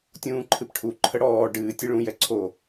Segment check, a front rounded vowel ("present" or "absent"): absent